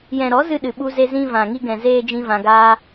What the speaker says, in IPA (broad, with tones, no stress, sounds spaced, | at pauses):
j ɛ̃˨ ɾ ɔ˨˦ z ɨ˧ ɗ ɨ˨ ɓ u˧ z e˧ z ĩ˧ v ã˨ ŋ i˧ ɡ ɛ̃˨ z eː˧ d͡ʒ ĩ˧ v ã˧ ɡ aː˦